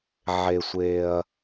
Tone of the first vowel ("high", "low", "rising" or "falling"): low